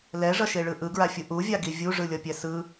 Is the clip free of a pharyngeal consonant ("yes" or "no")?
yes